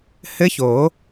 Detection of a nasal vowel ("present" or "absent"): absent